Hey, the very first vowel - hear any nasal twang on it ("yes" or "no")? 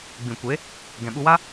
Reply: yes